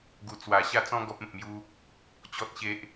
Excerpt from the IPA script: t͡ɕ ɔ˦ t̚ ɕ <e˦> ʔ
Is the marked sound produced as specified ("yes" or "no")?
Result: yes